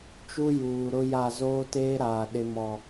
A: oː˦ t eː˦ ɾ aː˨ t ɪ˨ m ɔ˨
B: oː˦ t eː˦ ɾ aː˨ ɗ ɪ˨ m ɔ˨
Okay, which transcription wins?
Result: B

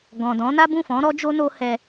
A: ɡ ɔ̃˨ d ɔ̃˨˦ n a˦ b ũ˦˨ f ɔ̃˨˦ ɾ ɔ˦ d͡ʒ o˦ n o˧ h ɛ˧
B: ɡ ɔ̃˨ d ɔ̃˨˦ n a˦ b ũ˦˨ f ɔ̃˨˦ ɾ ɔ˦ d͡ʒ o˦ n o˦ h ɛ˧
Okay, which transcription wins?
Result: B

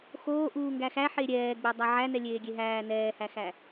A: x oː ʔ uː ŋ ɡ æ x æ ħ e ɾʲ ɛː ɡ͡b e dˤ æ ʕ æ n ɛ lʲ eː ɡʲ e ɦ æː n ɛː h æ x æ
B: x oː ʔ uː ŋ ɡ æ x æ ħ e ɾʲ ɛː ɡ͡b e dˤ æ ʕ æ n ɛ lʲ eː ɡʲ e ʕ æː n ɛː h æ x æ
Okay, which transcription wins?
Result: A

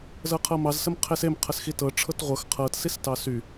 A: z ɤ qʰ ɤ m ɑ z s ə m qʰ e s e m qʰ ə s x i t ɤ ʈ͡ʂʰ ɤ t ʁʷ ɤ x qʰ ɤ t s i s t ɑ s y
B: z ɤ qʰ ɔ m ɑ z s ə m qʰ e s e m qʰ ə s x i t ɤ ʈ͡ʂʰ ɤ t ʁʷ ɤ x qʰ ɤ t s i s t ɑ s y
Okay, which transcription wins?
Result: A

